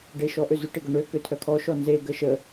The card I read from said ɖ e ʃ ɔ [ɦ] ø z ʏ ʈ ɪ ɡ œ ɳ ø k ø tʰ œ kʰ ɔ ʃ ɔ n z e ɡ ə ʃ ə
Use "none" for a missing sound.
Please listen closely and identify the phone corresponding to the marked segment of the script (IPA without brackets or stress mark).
ʔ